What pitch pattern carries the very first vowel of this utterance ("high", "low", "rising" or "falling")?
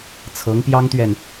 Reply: rising